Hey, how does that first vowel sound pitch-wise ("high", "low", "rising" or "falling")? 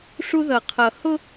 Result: high